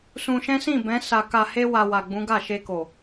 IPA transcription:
s ũ˧ ʃ ɛ̃˦ s ĩ˦˨ b ɛ̃˨˦ s a˧ k a˧ h e˦ w a˧ w a˨ ɡ͡b ũ˨˦ ɡ a˦˨ ʃ e˧ k o˨

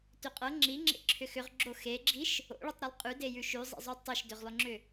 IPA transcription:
t ʏ qʼ ɤ ŋ͡ǁ i ŋ͡ǁ ḛ ǁʰ ʏ x ʏ ʁ ɡ͡ǁ o x e ɡ͡ǁ i ʃ | o̰ ɭ o tˤ ɾ i lˠ qʼ ʉ d e j ʉ ʃ ʉ zˤ ḭ zˤ ʉ tˤ ɤ ʃ d ʏ ʁ lˠ ʏ ŋ͡ǁ ʏ

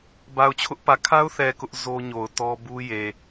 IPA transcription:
b a˨ ʊ̯ t͡ɕʰ ʊ˦ ʔ p ä˨ kʰ a˦ ʊ̯ θ ɛ˨ k ʊ˦ ʔ z o˦ ɲ o˨ ʊ̯ t ɔ˦ b u˦ j e˨

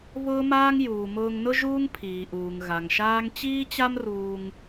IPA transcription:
β ʊː˥ m aː˥ ŋ j uː˩ m ʊː˧ ŋ n ʊ˥ ʒ uː˥ ŋ pʰ iː˩ ʔ uː˩ ŋ ɣ a˩ ŋ ʃ aː˥ ŋ t͡ɕ iː˥ t͡ɕ a˥ m r uː˧ ŋ

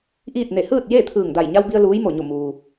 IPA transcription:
ʔ iː˥˨ t̚ n e˧˩ h ɯː˥˨ t̚ j e˥˨ t̪ʰ ɯː˧˩ ŋ d a˧˩ j ɲ a˧ w b i˧ ə̯ l uː˧˥ j m o˧˩ ɲ o˧˩ m uː˩

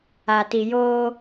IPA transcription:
a˨ t i˨ j oː˦

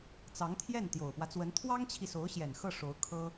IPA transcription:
t͡s ɑ˧˥ ŋ t̪ʰ j ɛ˥˩ n t̪ j o˨˩ ʊ̯ p w ä˦ t͡s w ə˧˥ n t̪ʰ w ɑ˥ ŋ t͡ɕʰ i˨ s o˧˥ ʊ̯ ɕ j ɛ˨˩ n x ɤ˥˩ ʂ o˧˥ ʊ̯ kʰ ɤ˥

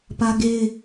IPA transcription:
p ä˦ ɡ e˦ ɪ̯

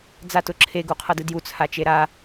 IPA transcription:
d͡z a t ʊ ǁʰ e ɡ u qʰ ʌ d ɯ d j u t͡sʰ a t͡ʃ e ɾ a

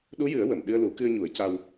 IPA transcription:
ɗ u˧˥ j ɨ˨˩˦ ə̯ w ə˨˩˨ m ɗ ɨ˧ ə̯ l u˨˩˦ k ɨ˧ ə̯ ɲ u˨˩˦ ə̯ c a˧ w

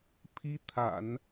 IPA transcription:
pʰ i˥ t̪ʰ a̰˨˩˦ n

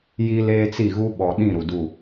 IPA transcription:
j i˦ l eː˦ t͡s i˦˨ ɣ u˦ ɓ ɔ˨ ɗ ĩ˦˨ ɾ u˨ d u˦˨

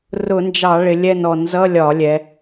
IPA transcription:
r ʊ˧˩˧ n d͡ʒ ɑ˧˩˧ ɭ ɪ˩˧ lʲ ɛ˦˨ n ɔ˧˩˧ n z ʌ˧˥˧ lʲ ɒ˧˩˧ lʲ ɛ˩˧

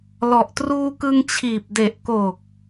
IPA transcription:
l ɔ˨˩ ʔ t r uː˧ k ɯ˧ ŋ t͡ɕʰ iː˨˩ p̚ d e˨˩ ʔ k o˨˩ k̚

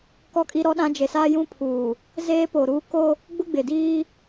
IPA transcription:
k ɔ˦ kʼ i˦ ɾ ɔ˦ ɗ ã˦ d͡ʒ e˨ s aː˦ j ũ˦ pʰ uː˨ | z eː˦ p o˨ ɾ uː˦ k o˦ | ɡ͡b ʊ˦ ɡ͡b ɪ˨ d iː˦

